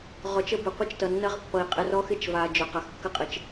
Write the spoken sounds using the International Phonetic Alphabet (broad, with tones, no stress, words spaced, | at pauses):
ʁɔ˨t͡ʃə˦bɪ˨ qʷə˦t͡ʃtʌ˨nːɐ˦ʁpːʌ˨i̯ qʼɪ˨rɔ˦xɪ˦t͡ʃva˨ d͡ʒɵ˨qɐ˨xkːə˦qʼɪ˨t͡ʃ